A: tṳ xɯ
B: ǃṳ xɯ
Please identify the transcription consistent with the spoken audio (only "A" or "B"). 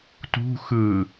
A